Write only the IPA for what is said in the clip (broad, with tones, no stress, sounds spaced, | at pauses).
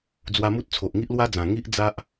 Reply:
d͡z w a˧ m u˦ t̚ t͡sʰ o˨ ʔ ŋ i˦ ʔ l w a˦ d͡z ã˨˩ ŋ i˦ ʔ d͡z a˦ ʔ